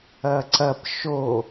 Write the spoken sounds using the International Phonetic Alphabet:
ɐ ǀ ɐ p ʃ o

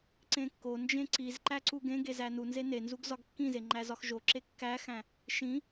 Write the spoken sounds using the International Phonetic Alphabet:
ǀ ẽ kː o n d͡ʒ ẽ ǀ i z ǃ æ ǀ u ɡ ẽ ɡ e z æ n u n z e n e n z u ɡ z ɒ ɡ kː ĩ z e ŋ͡ǃ æ z ɒ x ʒ o ǁ e kː æ x æ̃ | ʃ ĩ

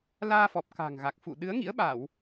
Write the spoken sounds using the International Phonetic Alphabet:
l aː˧ f ɔ˨˩ p̚ k a̤˨˩ ŋ ɣ a˨˩ k̚ f ṵ˧˨ ɗ ɨ˨˦ ə̯ ŋ ḭ˧˥ ə̯ ɓ a˧˩˨ w

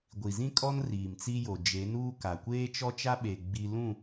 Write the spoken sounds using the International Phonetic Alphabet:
ɡʷ i˨ z ĩ˦ kʼ ɔ˦ n r iː˨ m t͡s i˦ j o˨ d͡ʒ e˨˦ n uː˦ k a˨ kʷ eː˦ t͡ʃ ɔ˦ t͡ʃ a˦ ɓ e˨ ɡ͡b i˦ l ũ˦˨

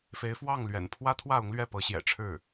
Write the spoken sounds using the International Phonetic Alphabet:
f e˧˥ ɪ̯ f w ɑ˥˩ ŋ l ɥ ɛ̰˨˩ n pʰ w ä˥ t̪ʰ w ä˥˩ ʊ˧˥ ŋ l ɥ ɛ˥˩ p ɤ˧˥ ɕ j ɛ̰˨˩ ʈ͡ʂʰ ɻ̩˥˩

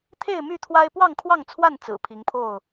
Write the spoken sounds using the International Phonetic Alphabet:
t̪ʰ e˥˨ ɪ̯ m y˥˨ t̪ʰ w a˦ ɪ̯ p w ɑ˥˨ ŋ kʰ w ɑ˥˨ ŋ t͡sʰ w a˥˨ n t͡s ɹ̩˨˩ pʰ i˨˦ ŋ pʰ o˥˨ ʊ̯

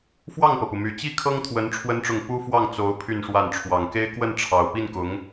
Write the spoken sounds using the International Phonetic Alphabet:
f w ɑ˥˩ ŋ p ɤ˩ p u˩ m y˨˩ t͡ɕ i˥ kʰ ɤ˥ ŋ t̪ʰ w ə˧˥ n ʈ͡ʂʰ w ə˥ n ʈ͡ʂ ʊ˥˩ ŋ p u˥ f w ɑ˥˩ ŋ t͡s o˧˥ ʊ̯ pʰ y˥˧ n ʂ w a˥˩ n ʈ͡ʂʰ w ɑ˨˩ ŋ k e˥ ɪ̯ k w ə˥˩ n ʈ͡ʂʰ ɑ˨˩ ʊ̯ p i˥˩ n k ʊ˧˥ ŋ

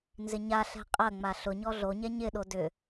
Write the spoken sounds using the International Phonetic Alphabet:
n z ɪ ɲ a ɬ ɛ̤ qʼ ɐ ŋ͡m a ɬ ʊ ɲ ɔ ɮ o ɲ ɛ ɲ ɪ ɗ o d ʏ

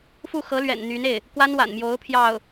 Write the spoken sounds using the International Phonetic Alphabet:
f u˥˩ x ɤ˧˥ l ɥ ɛ̰˨˩ n n̪ y˧˥ n e˥˩ ɪ̯ | k w a˥ n w a̰˨˩ n m j o˧˥ ʊ̯ pʰ j ɑ˥˩ ʊ̯

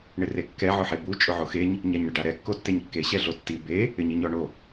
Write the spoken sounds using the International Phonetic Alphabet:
ɳ ɪ r e kː ɛ ʕ ʊ ħ e b u t͡ʃʼ ʊ ʕ o x e ɲ | ɲ a ɲ ɳ ɪ ɖ a ɾ ɛ kː o tː e ɲ kː e ɕ ɛ ɮ o tː i b e | ɪ ɲ i ɲ ɔ ɳ o

